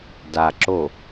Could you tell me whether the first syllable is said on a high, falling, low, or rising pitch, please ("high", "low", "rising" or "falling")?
low